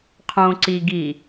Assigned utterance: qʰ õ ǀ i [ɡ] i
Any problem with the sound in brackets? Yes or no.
no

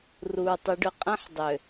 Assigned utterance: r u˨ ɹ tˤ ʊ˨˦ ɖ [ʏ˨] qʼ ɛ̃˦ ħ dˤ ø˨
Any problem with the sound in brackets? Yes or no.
no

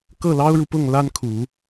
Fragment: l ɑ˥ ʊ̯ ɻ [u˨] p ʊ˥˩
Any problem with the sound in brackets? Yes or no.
no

